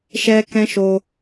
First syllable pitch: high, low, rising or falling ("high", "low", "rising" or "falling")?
high